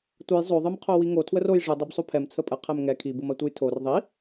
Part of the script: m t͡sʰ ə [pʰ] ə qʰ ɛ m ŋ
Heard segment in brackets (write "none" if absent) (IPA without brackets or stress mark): pʼ